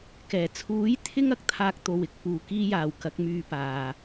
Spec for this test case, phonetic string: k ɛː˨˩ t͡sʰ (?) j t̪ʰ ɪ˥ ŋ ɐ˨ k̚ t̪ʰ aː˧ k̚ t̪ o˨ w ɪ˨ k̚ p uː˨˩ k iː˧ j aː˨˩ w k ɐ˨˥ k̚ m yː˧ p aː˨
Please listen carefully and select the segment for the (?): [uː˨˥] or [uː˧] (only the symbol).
uː˨˥